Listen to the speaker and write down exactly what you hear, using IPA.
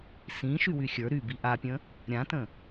sĩ ʃywyxʲə˞ ɾy biʔapʲə̃ | ɾʲãtə̃

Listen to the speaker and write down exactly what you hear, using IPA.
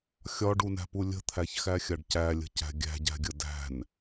xʲɒɖunæ̤pu lʲə̤t̪ʰæçxæxʲaɖ cælʲə̤cæ̤ ɡʲæ̤ɟæ̤ɡʲə dæ̤n

